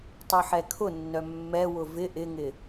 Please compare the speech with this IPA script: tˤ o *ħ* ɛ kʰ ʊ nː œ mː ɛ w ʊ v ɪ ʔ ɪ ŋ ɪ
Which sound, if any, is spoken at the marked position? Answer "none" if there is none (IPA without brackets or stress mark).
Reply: ħ